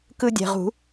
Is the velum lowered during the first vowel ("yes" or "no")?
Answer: no